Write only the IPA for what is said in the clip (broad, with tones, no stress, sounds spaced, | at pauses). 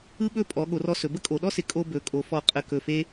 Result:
ɯ˥ ɓ ɵ˥˧ pʼ ɔ˩˧ ɠ o˩˧ r ɔ˧ s ɵ˩˧ b ə˥ kʼ o˩˧ ɗ ɔ˥ s ɪ˩˧ kʼ o˧ b ɵ˩˧ kʼ o˩˧ f ɔ˧˩ qʼ ə˧˩ k ɵ˧˩ f e˥